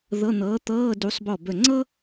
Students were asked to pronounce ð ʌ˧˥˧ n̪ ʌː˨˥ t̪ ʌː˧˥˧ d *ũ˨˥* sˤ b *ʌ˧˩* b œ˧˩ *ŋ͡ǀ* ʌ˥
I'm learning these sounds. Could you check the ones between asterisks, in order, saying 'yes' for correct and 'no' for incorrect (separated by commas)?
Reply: no, no, yes